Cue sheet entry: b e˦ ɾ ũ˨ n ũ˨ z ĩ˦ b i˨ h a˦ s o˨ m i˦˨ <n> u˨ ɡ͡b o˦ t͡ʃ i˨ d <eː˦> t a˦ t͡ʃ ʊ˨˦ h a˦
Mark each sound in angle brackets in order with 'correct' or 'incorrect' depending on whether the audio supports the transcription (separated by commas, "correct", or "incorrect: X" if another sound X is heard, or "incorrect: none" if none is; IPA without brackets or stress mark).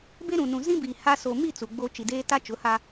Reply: incorrect: t͡s, correct